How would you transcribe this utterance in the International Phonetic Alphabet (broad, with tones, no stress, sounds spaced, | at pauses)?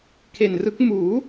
kʰ e˨˩ n r ɯ˦˥ k̚ m uː˩˦